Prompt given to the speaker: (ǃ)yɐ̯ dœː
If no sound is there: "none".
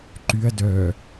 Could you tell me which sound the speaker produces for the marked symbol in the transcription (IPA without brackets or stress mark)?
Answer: ǃ